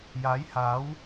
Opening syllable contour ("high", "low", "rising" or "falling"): rising